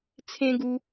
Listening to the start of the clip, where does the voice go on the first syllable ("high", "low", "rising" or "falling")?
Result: high